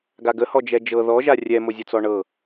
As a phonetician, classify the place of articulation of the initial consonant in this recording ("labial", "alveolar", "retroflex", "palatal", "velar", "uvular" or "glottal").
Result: velar